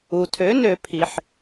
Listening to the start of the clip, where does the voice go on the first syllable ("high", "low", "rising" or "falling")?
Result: low